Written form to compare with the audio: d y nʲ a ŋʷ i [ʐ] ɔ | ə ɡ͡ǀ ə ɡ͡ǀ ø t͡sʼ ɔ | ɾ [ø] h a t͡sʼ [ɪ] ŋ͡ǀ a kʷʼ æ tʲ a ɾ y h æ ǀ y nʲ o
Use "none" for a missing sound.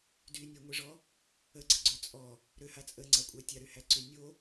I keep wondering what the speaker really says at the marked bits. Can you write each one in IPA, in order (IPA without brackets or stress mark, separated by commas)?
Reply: ʐ, ø, ə